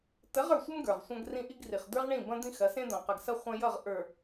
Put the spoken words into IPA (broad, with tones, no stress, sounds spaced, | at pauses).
t ə˨˦ ʁ ə˞˨ sʷ ə˦ m ɡ ə˞˨ ʁ sʷ ɐ̃˦ ɡ r ĩ˦ ʔ i˦ ɡ r i˨ χ d̪ ə˞˦ ʁ ɳ ĩ˦˨ b ɐ̃˦ d̪ ĩ˦ x ɐ˨˦ s ẽ˦ d̪ ɐ̃˨ q ʌ˨ ɡ s ɐ˦ χʷ ɐ̃˦ j ʌ˦˨ ʁ ʔ ə˞˨